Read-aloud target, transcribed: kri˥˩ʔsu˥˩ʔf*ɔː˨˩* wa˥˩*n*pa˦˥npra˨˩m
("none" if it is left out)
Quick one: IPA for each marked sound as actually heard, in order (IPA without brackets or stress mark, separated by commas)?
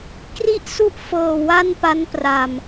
ɤː˨˩, n